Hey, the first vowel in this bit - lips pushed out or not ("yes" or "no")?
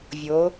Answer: yes